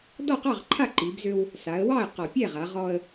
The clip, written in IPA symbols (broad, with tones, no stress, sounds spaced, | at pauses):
d ɔ˥˩ q ɑ˥˩ ʁ ǃʰ a˥˩ ǃ i˩˧ b z ø˧ w | s a˩˧ ə̯ w ɑ˥˩ ə̯ q ɔ˨˩ pʲ ɛ˥˩ ʁ a˩˧ ʁ ɔ˧ ə̯